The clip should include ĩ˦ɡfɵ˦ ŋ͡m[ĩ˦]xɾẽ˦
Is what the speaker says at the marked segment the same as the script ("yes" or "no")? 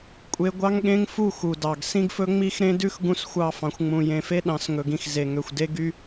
no